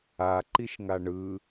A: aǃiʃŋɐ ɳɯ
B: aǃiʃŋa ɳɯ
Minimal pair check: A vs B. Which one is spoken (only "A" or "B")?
B